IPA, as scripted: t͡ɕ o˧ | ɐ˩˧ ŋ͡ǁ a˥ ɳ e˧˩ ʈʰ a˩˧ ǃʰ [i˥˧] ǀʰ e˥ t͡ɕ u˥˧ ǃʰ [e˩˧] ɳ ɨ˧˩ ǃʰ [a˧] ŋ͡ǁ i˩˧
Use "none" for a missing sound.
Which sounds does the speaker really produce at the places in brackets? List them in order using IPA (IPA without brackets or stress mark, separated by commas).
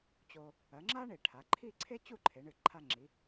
i˥˧, e˩˧, a˧